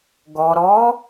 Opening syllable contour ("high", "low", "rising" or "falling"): low